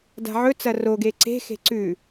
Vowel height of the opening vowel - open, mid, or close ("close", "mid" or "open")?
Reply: open